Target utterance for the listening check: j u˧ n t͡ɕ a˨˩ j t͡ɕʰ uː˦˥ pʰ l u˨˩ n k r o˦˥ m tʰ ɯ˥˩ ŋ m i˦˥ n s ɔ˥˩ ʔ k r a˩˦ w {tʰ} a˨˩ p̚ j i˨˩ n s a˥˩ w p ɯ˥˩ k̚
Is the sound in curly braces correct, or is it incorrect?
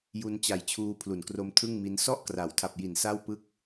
correct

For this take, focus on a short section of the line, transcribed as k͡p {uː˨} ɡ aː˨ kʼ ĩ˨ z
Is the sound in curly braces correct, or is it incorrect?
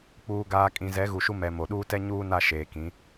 correct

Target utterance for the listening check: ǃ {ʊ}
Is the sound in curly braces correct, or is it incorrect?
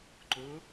correct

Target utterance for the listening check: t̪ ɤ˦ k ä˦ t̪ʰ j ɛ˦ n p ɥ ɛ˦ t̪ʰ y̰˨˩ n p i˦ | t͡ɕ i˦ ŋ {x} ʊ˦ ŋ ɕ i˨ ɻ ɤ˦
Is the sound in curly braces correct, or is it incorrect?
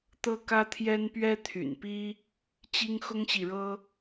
correct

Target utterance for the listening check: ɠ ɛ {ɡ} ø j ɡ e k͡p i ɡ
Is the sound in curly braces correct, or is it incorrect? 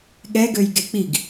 correct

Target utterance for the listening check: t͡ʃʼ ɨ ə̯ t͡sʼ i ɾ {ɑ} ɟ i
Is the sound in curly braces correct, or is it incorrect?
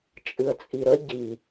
incorrect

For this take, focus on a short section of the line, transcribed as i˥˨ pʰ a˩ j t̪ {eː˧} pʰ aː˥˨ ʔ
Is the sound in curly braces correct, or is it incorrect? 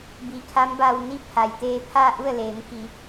correct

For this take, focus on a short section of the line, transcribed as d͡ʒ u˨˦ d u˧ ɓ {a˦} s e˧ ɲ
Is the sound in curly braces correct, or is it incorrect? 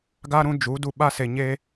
correct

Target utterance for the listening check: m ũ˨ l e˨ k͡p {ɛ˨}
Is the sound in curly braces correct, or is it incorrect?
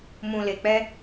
incorrect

